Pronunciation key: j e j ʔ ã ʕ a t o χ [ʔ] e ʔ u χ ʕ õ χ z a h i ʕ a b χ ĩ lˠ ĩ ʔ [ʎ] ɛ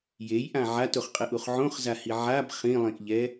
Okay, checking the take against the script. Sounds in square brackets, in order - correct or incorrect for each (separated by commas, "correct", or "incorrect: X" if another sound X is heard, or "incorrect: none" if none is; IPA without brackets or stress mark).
incorrect: qʼ, correct